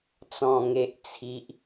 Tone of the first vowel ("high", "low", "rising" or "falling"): low